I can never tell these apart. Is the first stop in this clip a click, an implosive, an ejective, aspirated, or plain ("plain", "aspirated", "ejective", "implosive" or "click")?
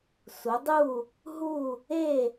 plain